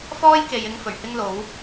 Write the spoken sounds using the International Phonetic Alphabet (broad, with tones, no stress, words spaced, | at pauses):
fɔː˥jke˨jɪ˧ŋ fɵ˨˩ɥhɪ˥ŋlo˨˥w